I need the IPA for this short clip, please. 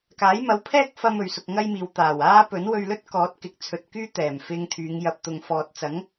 k aː˨˥ j m ɐ˨˥ w pʰ ɛː˥ k̚ f ɐ˧ m ɵ˨ ɥ s ʊ˧ k̚ ŋ ɐ˥ j m iː˨˧ w t̪ aː˨˩ w aː˥ p ɵ˨˥ n w ɵ˧ ɥ l ɵ˥ t̚ k ɔː˨˥ t̚ k ɪ˨ k̚ t͡sʰ ɵ˨ t̚ k yː˥ t̪ ɛː˨˩ m f ɪ˧ ŋ t̪ʰ yː˨˧ ŋ j ɐ˨ p̚ t̪ ʊ˨ ŋ f ɔː˨ t̚ t͡s ɐ˨˥ ŋ

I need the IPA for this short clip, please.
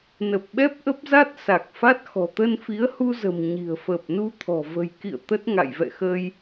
n ə˨˩ p̚ ɓ ɛ˦˥ p̚ ʔ ə˦˥ p̚ z a˦˥ t̚ s a˨˩ k̚ f a˦˥ t̚ x ɔ̤˨˩ t̪ ə˧ n f i˨˦ ə̯ h u˧ z ə̤˨˩ m ɲ i̤˨˩ ə̯ f əː˨˩ p̚ n u˧ t̪ʰ ɔ̤˨˩ v ə̤˨˩ j k ḭ˧˨ ə̯ t̪ ə˦˥ t̚ ŋ a̰˧˨ j v ɛ̰˧˨ x əː˧ j

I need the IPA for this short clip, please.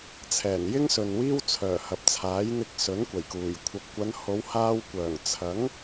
t͡sʰ ɛː˨˩ n j ɪ˥ ŋ s ɵ˨ n w iː˥ w t͡sʰ œː˨˩ h ɐ˨ p̚ t͡sʰ aː˨˥ j n̪ ɪ˧ k̚ s ɵ˨˥ n kʷ ɐ˨˩ j k uː˨˩ j kʷʰ ɐ˨ p̚ kʷ ɐ˨˧ n h o˨˧ w h aː˧ w kʷ œː˨˩ ŋ t͡sʰ ɐ˨˥ ŋ

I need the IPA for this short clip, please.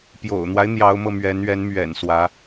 p j o̰˨˩ ʊ̯ n̪ w a˦ ɪ̯ n̪ j ɑ˧˥ ʊ̯ m ɤ˧ m ɥ ɛ˧˥ n ɥ ɛ˧˥ n m ɥ ɛ̰˨˩ n s w ä˧˥

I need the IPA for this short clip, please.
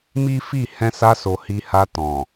m i˦ f i˦˨ h ɛ̃˧ s a˧ s o˨ h i˧ h a˧ t ɔ̃˨

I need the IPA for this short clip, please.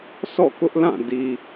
sʰ ɔ̰˦˨ k ʊ˦ ʔ l ã˦˨ d i˨

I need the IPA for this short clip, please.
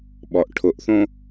ɓ ɔ ʔ ʈʰ ʊ ʔ θ õ

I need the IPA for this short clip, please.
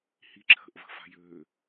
h i ǁʰ ə̤ ʔ v ə̤ f a̤ j ø

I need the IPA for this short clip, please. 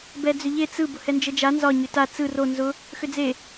b ɛ d͡z ʏ ʎ e t͡s ɯ b ʊ h ɛ n d͡ʒ ə d͡ʒ a n z ɒ ɲ ʏ t a t͡s ɯ r o n z ʊ | x ʏ d͡z e

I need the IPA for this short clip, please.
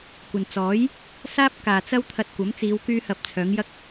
kʷ ɐ˨ n t͡s ɔː˨˥ j | s aː˥ p̚ k aː˨ t͡s ɐ˥ w t̪ʰ ɐ˧ t̚ kʷ ɐ˨˥ m t͡s iː˨˧ w k yː˥ h ɐ˧ p̚ t͡sʰ œː˨˥ ŋ j ɐ˥ k̚

